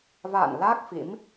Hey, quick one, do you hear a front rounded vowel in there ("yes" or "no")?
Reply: no